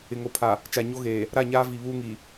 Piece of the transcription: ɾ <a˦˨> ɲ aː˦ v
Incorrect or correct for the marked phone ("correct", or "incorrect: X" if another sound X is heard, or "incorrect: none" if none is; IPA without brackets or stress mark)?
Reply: correct